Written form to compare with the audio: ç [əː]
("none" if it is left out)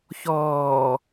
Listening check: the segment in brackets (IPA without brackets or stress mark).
ɔː